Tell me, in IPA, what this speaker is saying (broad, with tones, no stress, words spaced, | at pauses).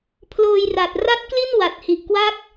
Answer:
pʰloː˧jra˨˩t̚ ra˦˥t̚kli˥˩n wa˨˩t̚hi˨˩ʔkwa˦˥k̚